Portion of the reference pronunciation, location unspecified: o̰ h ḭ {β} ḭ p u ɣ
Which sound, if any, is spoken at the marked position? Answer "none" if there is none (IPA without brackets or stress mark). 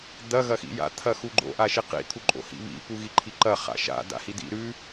β